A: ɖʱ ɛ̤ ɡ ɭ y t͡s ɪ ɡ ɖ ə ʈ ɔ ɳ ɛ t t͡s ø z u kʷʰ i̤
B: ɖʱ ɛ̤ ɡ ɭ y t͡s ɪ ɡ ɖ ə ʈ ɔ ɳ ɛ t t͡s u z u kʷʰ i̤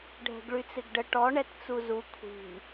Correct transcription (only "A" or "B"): B